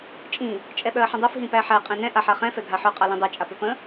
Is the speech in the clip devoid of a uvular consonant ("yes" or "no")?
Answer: no